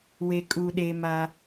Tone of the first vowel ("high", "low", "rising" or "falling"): low